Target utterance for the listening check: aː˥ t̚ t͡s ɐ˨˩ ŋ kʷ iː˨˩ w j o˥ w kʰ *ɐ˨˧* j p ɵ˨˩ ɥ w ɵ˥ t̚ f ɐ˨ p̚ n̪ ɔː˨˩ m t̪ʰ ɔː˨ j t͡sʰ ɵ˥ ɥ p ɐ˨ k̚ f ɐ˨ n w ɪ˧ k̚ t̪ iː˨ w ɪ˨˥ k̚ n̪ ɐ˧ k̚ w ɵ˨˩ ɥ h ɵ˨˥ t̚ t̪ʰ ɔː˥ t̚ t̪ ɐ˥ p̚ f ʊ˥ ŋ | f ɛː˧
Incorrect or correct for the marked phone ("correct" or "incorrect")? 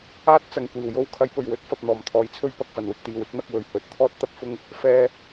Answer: correct